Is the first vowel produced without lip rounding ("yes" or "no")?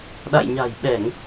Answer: yes